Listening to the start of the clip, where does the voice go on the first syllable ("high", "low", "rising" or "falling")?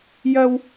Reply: high